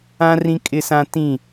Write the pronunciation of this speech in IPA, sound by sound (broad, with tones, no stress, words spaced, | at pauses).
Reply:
ã˦ rĩ˦kʼɪ˦sã˦ tĩ˦˨